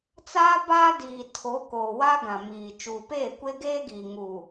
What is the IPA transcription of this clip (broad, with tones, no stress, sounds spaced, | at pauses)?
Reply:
t͡s aː˦ b aː˦ d iː˨ tʰ o˨˦ k oː˨ w a˦ ɡ ã˨ m iː˨ t͡ʃ uː˨ p eː˦˨ kʷ e˦ ɡ eː˦ ɡ iː˨ ŋ uː˨